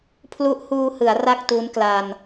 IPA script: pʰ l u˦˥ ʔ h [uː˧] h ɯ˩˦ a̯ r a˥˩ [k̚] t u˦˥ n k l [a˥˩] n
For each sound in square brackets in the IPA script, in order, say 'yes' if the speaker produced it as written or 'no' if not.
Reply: yes, yes, no

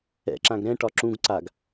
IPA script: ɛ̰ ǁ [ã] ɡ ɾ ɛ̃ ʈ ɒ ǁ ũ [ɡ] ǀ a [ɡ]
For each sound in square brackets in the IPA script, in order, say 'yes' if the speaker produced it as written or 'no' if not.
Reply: yes, yes, yes

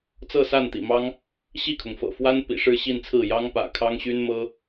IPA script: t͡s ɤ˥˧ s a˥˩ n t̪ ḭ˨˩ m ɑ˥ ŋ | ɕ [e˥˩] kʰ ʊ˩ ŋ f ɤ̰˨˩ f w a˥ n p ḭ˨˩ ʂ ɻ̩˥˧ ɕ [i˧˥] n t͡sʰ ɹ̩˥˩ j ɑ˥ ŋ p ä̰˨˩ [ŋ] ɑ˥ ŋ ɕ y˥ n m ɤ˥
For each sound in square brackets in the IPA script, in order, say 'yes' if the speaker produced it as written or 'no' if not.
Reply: no, no, no

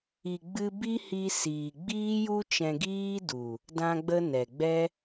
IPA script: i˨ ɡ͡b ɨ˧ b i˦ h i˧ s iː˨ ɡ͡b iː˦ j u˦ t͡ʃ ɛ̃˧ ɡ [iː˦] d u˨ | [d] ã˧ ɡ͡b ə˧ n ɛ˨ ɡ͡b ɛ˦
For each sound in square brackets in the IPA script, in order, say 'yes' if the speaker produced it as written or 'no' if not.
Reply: yes, yes

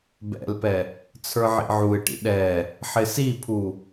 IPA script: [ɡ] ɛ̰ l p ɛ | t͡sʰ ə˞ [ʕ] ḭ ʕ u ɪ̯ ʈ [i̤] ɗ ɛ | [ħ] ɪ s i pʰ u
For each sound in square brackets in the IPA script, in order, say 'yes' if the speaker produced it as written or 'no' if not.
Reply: no, yes, no, yes

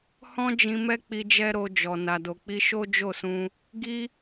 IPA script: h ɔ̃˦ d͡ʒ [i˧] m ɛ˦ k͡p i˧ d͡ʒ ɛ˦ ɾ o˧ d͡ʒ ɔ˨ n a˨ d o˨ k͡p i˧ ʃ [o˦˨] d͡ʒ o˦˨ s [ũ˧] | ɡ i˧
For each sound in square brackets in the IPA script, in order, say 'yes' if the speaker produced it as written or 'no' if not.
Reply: no, no, yes

